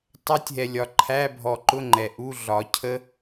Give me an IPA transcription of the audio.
tˤ æ˦˥ tʲ ɦ ɛ˨ lʲ ɒ˨˩˦ ǃʰ æ˧˥˧ bʱ ɔ˨˩˦ ǃ ʊ˧˥˧ ŋ͡ǃ ɛ˨ ʔ u˧˥˧ ɮ ɒ˨˩˦ cʰ ə˦˥

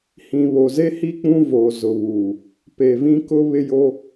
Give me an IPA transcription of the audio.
h ĩ˨ β o˨ z e˦ h i˦ k͡p ũ˦ v oː˨ z ʊ˨ β uː˨ | p e˨ v ĩ˦ k ʊ˦ β ɪ˦ j o˦

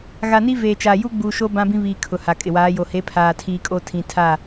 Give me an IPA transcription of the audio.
ɣ a˨ n i˦ v eː˨ t͡ʃ a˨ j u˦ ɡ͡b uː˨ ʃ o˦ b ã˦ b ĩ˦ β iː˨ kʰ ʊ˨ h a˨ kʼ ɪ˨ w aː˨˦ j o˨ h e˨˦ pʰ aː˨ tʰ iː˨ kʼ o˦ tʰ ĩ˨ tʰ a˦˨

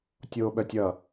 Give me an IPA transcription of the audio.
tʲ oː ɓ œ tʲ ʌ

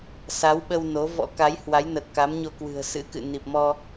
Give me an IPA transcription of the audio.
s a˨˦ w ɓ ə˧ w n o˨˦ v ɔ̰˧˥ k a˨˦ j h w a˨˦ j n ə˨˩ t̚ k a˨˦ m ɲ o˧ k w ɨ̤˨˩ ə̯ s ɨ̰˧˥ k ɨ̰˧˨ n i˨˩ p̚ m ɔ˧

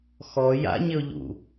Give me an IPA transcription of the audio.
x ɔ j a̰ ɲ ɪ ʊ̯ ʎ ṵ

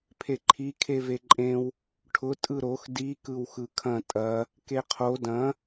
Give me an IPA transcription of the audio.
pʰ e ǃʰ i kʰ e v e ǃʼ ẽ w | ʈʰ ʊ tʼ ɯ ɾ o x d i k ɯ w x ɯ kʰ ɐ̃ tʼ ɐ | k e qʰ o d ɐ̃

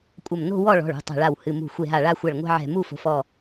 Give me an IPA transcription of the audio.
kʷʼ ɐ˧˩ m n o̤˥˧ w ɔ˥˧ ɭ ɔ̤˩˧˩ ɭ ṳ˩˧˩ tˤ ɛ̤˧˩ ɭ a˧˩ w h ɨ˩˧˩ m ṳ˧˩ xʷ e˧˩ ɦ a˧˩ ɭ a˥˧ xʷ ɐ˧˩ ɭ ŋʷ ɛ̤˥˧ ʕ ɛ̤˧˩ m u˥˧ f o̤˩˧˩ f ɔ˧˩

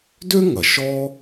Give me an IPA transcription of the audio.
d ø˥ ŋ ɐ˩ ʃ ɔ˥

